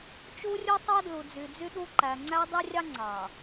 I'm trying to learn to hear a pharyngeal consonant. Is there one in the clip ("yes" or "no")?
no